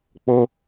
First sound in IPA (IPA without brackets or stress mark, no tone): k͡p